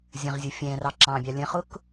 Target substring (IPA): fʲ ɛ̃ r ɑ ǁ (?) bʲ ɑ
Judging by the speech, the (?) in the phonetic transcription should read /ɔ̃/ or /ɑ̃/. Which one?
ɑ̃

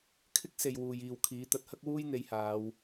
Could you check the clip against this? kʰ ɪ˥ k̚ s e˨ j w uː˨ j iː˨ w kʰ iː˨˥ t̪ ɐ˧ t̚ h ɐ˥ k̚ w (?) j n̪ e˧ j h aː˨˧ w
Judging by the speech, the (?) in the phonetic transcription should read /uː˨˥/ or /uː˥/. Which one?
uː˥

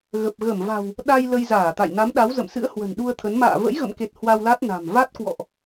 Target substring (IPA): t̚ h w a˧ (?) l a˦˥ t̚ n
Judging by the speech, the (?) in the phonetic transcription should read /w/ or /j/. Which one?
w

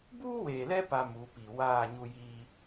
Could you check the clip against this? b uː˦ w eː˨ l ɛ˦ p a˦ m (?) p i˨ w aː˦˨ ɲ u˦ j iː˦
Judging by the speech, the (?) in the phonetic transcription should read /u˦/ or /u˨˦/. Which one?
u˨˦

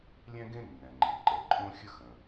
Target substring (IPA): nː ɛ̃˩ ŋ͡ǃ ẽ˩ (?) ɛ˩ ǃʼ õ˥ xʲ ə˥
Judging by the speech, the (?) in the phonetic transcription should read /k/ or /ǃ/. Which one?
ǃ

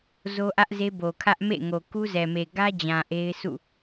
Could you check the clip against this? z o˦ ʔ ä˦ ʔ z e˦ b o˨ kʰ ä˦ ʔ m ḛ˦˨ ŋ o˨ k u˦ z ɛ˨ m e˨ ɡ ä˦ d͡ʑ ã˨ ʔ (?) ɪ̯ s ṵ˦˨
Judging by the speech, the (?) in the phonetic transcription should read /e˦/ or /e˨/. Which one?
e˦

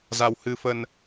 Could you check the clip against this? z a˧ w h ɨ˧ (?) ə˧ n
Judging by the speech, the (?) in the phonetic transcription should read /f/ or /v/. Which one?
f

